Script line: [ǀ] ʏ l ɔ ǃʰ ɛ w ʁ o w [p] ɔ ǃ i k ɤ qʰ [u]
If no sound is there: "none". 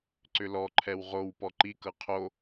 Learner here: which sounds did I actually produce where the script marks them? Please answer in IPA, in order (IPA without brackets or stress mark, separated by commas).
ǀ, p, o